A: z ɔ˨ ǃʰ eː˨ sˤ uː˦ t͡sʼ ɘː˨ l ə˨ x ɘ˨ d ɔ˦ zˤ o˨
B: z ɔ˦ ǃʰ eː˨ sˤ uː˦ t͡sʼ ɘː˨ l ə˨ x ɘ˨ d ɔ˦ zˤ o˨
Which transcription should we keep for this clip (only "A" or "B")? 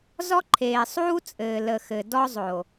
B